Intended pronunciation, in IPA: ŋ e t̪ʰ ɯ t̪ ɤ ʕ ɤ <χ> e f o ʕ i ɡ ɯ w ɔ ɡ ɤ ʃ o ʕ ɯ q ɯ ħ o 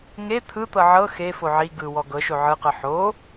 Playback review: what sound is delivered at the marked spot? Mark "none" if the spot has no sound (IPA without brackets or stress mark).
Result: x